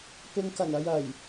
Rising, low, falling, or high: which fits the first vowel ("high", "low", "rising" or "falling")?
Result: low